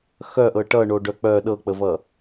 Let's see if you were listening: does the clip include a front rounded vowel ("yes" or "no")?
yes